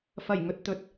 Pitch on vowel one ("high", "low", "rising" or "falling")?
low